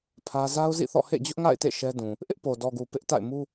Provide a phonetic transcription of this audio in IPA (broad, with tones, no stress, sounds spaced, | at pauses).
pʰ ä˦ z a˦ ʊ̯ z ḭ˦˨ θ ɔ̰˦˨ h ḛ˦˨ d͡ʑ ʊ˦ ʔ ŋ a̰˦˨ ɪ̯ t ḛ˦˨ ʃ ɛ˦ d ũ˨ | ʔ ɪ˦ ʔ p o˨ d ɔ˨ ɡ u˨ p ɪ˦ ʔ t a̰˦˨ ɪ̯ m u˦